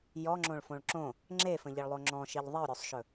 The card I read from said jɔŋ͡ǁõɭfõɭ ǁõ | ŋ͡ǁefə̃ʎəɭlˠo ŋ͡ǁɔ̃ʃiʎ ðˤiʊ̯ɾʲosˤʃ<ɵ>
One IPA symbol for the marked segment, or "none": ɵ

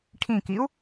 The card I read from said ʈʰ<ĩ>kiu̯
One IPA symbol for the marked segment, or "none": ĩ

